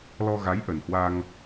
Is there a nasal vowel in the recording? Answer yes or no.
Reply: no